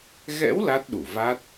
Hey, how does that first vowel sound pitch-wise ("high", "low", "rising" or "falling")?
rising